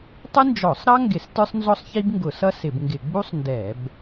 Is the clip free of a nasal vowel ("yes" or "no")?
yes